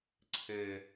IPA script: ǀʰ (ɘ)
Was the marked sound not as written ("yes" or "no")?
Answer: no